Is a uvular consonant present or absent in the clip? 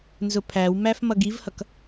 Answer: absent